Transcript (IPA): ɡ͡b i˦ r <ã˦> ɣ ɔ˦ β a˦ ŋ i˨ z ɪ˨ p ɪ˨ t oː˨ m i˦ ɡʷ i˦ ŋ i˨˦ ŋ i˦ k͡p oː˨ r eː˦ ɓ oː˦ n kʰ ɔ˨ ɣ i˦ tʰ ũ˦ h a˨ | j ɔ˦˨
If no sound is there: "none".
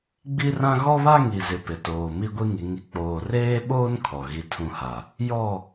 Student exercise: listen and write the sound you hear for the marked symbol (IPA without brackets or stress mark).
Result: ã˦